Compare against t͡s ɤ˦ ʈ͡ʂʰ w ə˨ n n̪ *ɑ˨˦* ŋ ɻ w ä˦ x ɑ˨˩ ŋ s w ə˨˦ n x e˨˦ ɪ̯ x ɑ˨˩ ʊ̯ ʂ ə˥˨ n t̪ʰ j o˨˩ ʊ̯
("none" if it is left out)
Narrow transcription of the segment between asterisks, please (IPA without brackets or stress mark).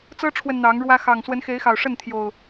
ɑ˨˦